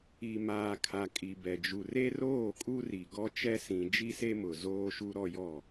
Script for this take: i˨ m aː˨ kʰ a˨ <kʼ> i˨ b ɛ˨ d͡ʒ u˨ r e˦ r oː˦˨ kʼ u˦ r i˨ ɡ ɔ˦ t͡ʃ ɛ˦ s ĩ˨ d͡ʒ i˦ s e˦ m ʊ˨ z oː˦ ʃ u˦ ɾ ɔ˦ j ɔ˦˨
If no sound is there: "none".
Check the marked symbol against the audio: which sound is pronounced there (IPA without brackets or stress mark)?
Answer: kʼ